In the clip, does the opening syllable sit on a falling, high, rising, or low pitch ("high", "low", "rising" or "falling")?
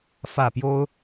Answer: falling